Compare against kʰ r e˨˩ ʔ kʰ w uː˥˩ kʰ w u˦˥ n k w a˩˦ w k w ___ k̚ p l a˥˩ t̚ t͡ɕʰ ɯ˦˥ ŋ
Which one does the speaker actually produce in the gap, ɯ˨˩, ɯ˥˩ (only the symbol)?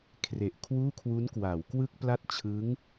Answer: ɯ˥˩